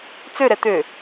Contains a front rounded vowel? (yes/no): yes